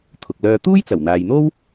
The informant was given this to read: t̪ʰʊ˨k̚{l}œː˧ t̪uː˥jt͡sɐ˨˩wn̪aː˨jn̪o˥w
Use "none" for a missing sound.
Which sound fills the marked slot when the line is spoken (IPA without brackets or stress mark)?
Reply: l